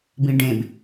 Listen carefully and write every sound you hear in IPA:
b ĩ ɖ ẽ b

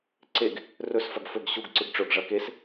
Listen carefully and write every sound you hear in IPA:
ǀ e ɡ | r ɵ s f ɐ ɡ f ɵ ɡ ɕ u ɡ ǀ ɨ ɡ ʈ͡ʂ ɵ ɡ ʐ ɐ k e s

